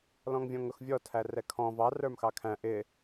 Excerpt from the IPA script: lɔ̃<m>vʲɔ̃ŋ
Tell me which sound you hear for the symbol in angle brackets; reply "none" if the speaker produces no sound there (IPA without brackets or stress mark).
ŋ